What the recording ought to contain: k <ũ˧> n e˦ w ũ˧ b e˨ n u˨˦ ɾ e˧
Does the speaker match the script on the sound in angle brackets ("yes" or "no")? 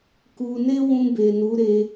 no